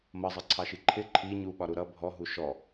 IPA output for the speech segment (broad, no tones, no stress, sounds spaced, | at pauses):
m ʌ zˤ ʌ ǀʰ ɑ ʃ i ǃʰ ɪ ǃʰ i ɲ u ɓ ɒ ɾ u ɾ ʌ bʱ ɔ ɦ u ʃ ɔ